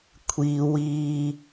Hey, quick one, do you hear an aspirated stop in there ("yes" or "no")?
yes